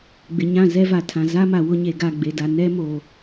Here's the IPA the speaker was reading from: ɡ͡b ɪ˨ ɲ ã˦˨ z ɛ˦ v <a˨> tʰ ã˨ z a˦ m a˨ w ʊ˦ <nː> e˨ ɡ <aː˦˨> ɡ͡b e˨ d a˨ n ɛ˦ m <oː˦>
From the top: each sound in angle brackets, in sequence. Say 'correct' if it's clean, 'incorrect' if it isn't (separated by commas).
correct, incorrect, incorrect, incorrect